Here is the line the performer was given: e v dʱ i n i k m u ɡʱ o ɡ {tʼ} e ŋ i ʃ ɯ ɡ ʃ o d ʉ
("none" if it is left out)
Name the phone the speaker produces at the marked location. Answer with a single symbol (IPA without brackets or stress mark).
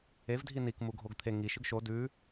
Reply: t̪ʰ